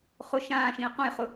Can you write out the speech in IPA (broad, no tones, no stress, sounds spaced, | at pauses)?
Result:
χ ʊ ʃ ãː ʃ ĩ ə̯ q õ j χ ʊ